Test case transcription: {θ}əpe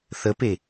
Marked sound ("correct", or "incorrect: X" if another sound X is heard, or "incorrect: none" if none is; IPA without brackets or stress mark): correct